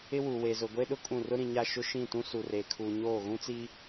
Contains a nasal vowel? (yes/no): yes